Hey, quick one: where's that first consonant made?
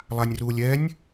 tongue tip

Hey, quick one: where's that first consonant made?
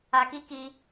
velum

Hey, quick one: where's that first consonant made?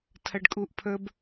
tongue tip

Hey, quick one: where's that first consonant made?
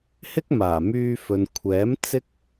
throat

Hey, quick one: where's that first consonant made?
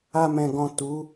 lips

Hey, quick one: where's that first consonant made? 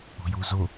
palate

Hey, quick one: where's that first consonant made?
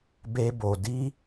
lips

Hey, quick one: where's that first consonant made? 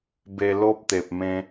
lips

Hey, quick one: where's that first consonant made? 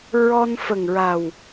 tongue tip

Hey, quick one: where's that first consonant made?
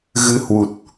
velum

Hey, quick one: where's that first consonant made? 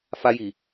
lips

